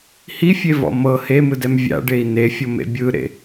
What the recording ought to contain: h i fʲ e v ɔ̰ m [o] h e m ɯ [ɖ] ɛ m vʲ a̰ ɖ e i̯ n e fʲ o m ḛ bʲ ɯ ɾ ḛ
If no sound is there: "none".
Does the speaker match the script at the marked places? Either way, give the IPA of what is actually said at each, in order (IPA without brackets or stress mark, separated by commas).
ɤ, d